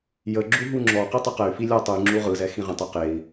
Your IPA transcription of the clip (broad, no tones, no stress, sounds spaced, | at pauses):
j ə ɡ͡ǁ u ɦ u ŋ͡ǁ ɔ q i tˤ ə q ɛ y̯ f i lʲ ɔ tˤ ɯ ŋ͡ǁ u ʁ ɯ z ɛ x ĩ ʁ ə̃ tˤ e q e i̯